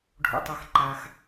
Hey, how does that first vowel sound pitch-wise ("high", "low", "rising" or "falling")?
low